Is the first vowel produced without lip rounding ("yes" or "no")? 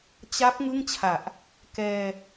yes